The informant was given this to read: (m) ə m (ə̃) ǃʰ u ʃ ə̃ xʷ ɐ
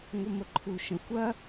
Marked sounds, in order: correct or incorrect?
incorrect: ŋʷ, incorrect: ə

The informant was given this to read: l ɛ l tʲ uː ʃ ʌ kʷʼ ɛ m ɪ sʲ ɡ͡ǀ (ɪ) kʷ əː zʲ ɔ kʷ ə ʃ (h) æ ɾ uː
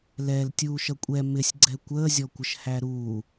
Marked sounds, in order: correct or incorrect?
incorrect: ɛ, correct

